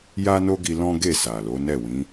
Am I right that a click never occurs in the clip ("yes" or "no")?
yes